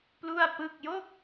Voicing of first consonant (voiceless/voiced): voiceless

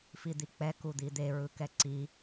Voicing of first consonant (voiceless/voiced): voiceless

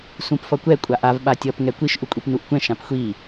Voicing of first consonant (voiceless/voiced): voiceless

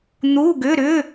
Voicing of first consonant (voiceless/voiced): voiced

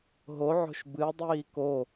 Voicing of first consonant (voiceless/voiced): voiced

